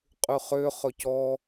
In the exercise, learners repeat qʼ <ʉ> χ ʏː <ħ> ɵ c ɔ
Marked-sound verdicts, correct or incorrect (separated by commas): correct, incorrect